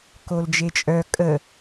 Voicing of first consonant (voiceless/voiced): voiceless